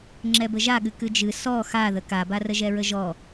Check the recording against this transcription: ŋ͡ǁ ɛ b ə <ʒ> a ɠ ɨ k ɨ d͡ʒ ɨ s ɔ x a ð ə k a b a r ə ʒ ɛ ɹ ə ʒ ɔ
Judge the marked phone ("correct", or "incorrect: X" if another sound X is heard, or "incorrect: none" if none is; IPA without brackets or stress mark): correct